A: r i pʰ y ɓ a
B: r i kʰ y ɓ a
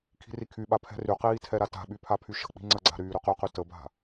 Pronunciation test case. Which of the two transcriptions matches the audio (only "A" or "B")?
B